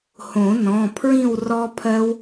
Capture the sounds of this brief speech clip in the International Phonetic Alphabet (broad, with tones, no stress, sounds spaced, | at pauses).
h õ˨˩˦ n ɔ̃˩˧˩ pʰ ɹ ĩ˥˨ w r ɔ˦˥ pʰ ɜ˦˥ w